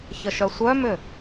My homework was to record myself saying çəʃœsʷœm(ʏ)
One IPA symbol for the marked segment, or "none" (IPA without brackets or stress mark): ʏ